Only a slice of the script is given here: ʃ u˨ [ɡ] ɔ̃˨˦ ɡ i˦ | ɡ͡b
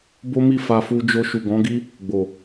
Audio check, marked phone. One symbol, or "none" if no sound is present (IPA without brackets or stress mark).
ɡ